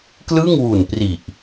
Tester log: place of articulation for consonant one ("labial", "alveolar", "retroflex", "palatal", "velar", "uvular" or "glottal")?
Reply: velar